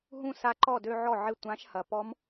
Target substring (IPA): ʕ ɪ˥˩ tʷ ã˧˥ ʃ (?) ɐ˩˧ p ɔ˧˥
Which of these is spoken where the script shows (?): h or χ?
h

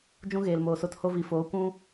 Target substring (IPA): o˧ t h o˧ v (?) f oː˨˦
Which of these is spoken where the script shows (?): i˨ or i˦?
i˨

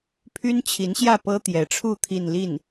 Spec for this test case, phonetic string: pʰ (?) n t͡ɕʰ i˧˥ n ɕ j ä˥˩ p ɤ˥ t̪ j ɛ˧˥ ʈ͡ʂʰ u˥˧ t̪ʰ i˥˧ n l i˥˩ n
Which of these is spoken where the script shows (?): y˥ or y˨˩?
y˥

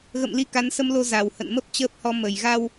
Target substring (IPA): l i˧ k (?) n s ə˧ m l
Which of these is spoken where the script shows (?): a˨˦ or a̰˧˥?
a˨˦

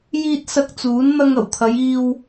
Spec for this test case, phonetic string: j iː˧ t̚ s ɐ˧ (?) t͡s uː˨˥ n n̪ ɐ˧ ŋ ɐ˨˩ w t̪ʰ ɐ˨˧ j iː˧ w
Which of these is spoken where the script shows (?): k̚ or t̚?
k̚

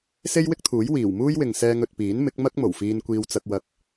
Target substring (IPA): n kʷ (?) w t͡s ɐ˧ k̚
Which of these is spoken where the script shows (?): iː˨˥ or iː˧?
iː˧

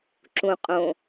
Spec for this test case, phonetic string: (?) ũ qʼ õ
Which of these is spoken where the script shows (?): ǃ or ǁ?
ǁ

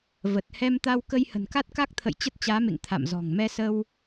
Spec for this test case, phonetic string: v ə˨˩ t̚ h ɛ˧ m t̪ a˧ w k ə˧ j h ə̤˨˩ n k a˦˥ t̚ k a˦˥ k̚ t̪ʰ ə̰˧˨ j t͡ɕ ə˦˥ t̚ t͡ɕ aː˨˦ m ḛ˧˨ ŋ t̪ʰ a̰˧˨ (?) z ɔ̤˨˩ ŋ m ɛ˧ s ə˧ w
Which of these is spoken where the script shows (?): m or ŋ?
m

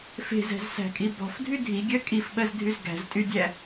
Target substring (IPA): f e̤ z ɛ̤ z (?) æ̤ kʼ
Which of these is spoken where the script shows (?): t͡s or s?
s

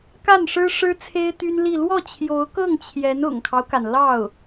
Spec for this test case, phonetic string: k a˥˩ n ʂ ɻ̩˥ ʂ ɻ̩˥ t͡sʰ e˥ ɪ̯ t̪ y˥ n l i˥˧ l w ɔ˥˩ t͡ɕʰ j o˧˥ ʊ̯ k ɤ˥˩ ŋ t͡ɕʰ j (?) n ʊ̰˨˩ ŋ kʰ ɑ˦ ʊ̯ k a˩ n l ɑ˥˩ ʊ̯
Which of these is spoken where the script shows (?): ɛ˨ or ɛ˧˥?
ɛ˧˥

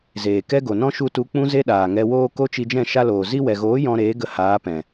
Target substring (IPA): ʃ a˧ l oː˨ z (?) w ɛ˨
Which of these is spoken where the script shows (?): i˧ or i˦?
i˧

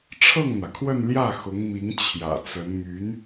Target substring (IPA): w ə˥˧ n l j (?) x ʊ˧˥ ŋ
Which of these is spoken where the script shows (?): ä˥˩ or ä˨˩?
ä˥˩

